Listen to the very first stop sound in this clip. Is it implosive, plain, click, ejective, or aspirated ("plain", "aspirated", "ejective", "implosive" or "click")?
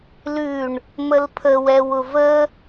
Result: aspirated